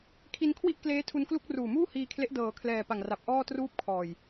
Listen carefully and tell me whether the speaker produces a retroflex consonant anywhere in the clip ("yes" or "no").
no